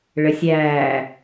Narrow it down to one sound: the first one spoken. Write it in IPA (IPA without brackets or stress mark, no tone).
ɭ